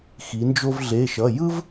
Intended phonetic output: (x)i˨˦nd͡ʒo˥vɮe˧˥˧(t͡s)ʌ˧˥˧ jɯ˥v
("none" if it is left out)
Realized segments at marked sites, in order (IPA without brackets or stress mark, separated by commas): x, ʃ